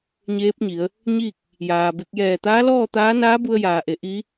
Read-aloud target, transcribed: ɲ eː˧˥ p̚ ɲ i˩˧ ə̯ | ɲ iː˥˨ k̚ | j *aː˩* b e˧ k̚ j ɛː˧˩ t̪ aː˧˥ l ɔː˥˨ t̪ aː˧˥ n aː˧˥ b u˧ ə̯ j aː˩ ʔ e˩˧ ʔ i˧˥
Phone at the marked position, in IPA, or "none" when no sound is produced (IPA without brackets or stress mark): aː˩